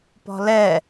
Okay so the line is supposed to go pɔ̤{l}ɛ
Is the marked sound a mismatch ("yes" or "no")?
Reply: no